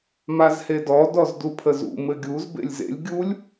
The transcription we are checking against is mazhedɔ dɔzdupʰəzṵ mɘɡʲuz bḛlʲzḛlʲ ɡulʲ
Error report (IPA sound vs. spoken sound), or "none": ɡ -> ɡʲ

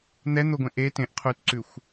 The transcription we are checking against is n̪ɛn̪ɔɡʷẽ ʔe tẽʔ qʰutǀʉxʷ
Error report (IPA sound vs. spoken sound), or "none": ɔ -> o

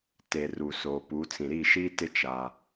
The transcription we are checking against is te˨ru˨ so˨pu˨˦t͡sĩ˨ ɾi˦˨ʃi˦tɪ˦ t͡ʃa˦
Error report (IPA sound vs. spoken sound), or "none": none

